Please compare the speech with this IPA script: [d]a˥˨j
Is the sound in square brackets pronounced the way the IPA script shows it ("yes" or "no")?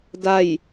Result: yes